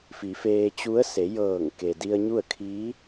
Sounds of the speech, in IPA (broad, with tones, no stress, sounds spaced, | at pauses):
f i˩˧ f eː˧ t͡ɕ u˧˥ ə̯ s e˩˧ j ɤː˧˩ ŋ k e˩ d i˧ ə̯ ɲ u˥˨ ə̯ kʰ iː˧˥